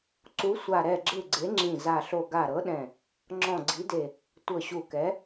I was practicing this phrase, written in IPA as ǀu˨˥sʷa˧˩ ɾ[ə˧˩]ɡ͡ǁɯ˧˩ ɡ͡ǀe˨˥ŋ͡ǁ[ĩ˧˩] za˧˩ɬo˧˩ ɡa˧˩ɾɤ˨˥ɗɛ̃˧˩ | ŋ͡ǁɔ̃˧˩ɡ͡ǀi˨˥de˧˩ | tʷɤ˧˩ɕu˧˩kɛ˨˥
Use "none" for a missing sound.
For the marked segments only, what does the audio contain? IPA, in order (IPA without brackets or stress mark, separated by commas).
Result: ɛ˧˩, ĩ˧˩